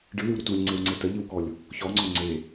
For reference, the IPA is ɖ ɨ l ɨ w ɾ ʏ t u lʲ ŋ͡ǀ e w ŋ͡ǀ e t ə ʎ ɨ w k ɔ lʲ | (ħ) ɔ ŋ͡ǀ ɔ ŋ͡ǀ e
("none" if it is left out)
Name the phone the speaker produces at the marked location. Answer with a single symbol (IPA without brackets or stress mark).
ç